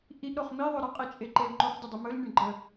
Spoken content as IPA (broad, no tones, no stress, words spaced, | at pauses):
ʔiʔɾoχ miðˤɵ ɾəqʼit͡ʃʼeǃel ŋ͡ǃoχdʲədˤɪ mɵlnʲɵɳɡ͡ǃə